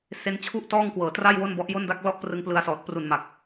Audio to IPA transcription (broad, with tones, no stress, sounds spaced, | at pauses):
s e˧ n t͡ɕʰ u˥˩ ʔ t ɔː˥˩ ŋ k w ɤː˩˦ t r a˥˩ j w o˥˩ n b ɔ˦˥ ʔ j o˥˩ n d a˥˩ k̚ l ɔ˥˩ ʔ p r ɯ˧ ŋ p l ɯ˧ a̯ s ɔː˨˩ t̚ p r u˨˩ n m a˨˩ k̚